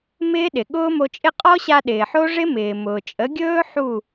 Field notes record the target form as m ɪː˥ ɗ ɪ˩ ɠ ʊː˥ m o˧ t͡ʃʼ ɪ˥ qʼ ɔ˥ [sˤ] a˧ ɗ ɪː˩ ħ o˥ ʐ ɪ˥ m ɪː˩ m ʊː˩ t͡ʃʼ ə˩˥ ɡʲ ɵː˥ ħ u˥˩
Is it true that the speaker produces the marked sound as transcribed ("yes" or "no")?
no